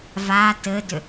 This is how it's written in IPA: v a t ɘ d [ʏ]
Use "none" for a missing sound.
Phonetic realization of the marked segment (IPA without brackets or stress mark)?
ʏ